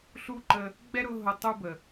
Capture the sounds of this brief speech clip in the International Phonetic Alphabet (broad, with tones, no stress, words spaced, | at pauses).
ɬu˥ǃə˦ | ɡ͡bɛ˥ɾʊ˦ ɦʊ˦tˤu˥bə˨